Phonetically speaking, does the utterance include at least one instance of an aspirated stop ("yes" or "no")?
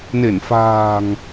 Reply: no